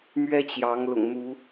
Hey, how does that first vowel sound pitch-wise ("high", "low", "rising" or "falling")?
high